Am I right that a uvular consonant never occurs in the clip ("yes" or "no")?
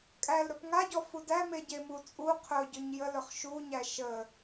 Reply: no